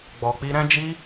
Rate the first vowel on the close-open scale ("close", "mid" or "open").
mid